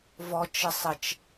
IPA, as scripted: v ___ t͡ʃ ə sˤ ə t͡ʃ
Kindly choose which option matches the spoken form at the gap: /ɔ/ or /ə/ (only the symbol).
ɔ